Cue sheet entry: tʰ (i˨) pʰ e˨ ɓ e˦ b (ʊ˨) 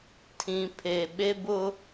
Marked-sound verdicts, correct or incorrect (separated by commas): incorrect, incorrect